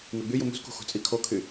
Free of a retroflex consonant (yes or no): yes